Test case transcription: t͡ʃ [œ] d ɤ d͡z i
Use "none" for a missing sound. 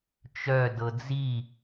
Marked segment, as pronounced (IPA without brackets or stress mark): œ